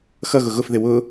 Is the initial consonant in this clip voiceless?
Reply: yes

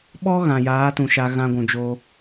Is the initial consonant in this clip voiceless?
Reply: no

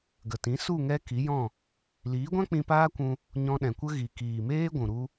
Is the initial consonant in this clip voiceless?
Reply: no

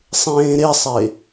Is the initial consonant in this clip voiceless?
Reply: yes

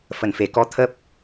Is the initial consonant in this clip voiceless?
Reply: yes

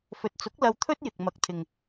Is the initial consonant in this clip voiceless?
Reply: yes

